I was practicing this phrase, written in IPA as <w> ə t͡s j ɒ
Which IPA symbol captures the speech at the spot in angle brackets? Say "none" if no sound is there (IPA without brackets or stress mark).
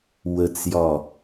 w